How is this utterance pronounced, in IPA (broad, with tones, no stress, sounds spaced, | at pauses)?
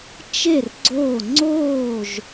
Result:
t͡ʃ e˥˨ r ɡ͡ǀ oː˥˨ ŋ͡ǀ oː˥˨ ʒ